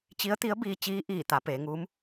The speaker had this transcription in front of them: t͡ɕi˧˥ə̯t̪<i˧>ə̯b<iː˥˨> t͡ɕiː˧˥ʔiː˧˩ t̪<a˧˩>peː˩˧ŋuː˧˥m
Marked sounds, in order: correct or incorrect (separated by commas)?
incorrect, incorrect, incorrect